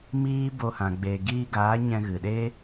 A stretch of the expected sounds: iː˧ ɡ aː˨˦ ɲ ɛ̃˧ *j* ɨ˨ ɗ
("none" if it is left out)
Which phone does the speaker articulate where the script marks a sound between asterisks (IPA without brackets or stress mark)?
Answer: ɣ